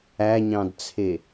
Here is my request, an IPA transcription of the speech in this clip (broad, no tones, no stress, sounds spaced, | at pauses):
æ ɲ ɑ̃ d t͡sʰ e